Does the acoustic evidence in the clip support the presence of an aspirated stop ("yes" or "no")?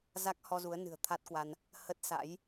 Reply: yes